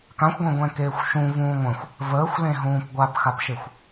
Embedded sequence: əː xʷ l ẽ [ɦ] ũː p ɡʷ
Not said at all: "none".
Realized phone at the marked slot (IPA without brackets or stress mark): ɦ